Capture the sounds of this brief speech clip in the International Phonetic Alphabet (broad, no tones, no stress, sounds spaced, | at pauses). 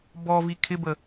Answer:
b ɔ v i kʰ ɪ b ə